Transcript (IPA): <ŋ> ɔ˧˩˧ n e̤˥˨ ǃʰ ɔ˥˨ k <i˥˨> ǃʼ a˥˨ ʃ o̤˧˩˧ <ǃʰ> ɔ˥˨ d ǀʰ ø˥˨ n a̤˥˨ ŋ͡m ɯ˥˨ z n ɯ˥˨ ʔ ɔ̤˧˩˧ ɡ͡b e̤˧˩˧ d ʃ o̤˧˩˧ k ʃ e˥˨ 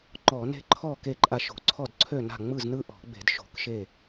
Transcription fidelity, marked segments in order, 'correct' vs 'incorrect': incorrect: ŋ͡ǃ, incorrect: e˥˨, incorrect: ǀʰ

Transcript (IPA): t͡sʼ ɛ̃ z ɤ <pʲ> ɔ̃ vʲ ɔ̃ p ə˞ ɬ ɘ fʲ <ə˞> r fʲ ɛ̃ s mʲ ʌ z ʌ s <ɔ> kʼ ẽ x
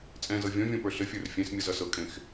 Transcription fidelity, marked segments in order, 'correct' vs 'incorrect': incorrect: vʲ, correct, incorrect: ɤ

